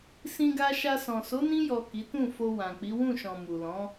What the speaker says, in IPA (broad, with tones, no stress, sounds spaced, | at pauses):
s ĩ˧ ɡ a˧ ʃ a˧ s ɔ̃˨ s o˨˦ n ĩ˧ j ɔ˨ k i˨˦ t ũ˦˨ f o˧ w ã˨ k͡p i˨˦ w ũ˦˨ ʃ ɔ̃˨ m u˨ l ɔ̃˨˦